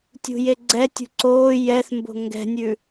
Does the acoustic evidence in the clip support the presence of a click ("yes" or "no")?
yes